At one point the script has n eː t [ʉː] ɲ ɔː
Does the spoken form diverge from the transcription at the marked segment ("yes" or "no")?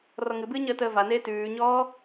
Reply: no